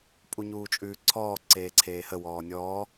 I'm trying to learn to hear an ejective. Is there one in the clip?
yes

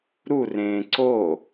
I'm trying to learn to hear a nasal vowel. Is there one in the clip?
yes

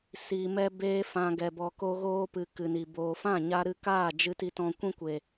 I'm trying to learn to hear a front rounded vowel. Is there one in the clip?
no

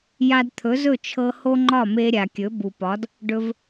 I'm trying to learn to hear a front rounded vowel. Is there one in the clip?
no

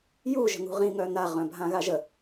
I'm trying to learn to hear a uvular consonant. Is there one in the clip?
yes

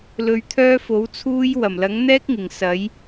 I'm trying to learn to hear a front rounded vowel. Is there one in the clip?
yes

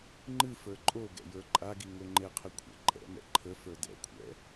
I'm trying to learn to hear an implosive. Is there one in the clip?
no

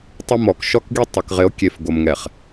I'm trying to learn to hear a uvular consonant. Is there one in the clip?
yes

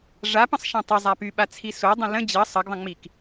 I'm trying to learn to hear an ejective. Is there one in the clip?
no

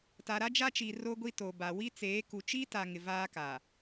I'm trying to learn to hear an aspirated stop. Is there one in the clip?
no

